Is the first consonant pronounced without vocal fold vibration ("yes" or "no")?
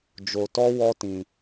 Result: no